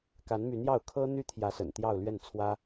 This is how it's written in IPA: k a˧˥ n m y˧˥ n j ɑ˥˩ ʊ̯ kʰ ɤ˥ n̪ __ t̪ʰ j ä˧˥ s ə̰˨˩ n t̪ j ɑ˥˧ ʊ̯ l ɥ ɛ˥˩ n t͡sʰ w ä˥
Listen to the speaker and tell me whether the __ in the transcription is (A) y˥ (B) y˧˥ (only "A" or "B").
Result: A